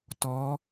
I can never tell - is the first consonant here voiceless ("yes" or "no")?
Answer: yes